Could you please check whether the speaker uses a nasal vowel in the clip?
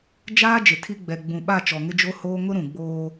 yes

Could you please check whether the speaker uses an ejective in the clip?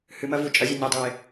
yes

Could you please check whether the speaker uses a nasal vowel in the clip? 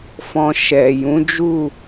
yes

